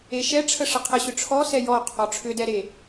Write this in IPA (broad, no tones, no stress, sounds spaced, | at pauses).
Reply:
e ʃ ɛ ʈ͡ʂʰ ə ʂ ə qʰ ə ɕ ʏ ʈ͡ʂʰ ɔ s ɛ j ɔ qʰ ɔ ʈ͡ʂʰ ʏ d ɛ ɾ e